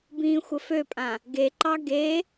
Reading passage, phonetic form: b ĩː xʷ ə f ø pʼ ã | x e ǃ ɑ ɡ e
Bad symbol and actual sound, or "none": x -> ɡ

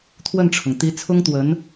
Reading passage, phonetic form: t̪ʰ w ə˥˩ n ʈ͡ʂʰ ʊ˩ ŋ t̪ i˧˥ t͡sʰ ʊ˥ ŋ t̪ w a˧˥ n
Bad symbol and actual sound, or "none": a˧˥ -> ə˧˥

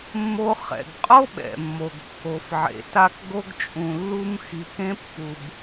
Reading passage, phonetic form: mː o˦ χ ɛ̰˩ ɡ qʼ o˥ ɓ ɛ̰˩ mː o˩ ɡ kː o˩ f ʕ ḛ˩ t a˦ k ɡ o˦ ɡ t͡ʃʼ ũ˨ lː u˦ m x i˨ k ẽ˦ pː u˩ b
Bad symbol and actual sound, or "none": none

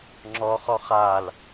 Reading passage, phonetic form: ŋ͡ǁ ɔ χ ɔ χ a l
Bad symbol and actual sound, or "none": none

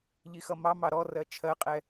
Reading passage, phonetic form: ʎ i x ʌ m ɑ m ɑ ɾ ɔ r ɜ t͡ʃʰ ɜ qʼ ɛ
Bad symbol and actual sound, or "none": none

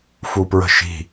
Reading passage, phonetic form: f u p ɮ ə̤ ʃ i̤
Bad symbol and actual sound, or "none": ɮ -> ɹ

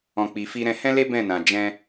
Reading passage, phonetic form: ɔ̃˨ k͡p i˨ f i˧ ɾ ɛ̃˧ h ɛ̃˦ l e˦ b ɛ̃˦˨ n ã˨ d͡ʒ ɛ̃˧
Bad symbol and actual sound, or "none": none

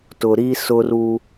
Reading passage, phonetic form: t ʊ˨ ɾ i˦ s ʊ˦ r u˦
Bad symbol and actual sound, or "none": none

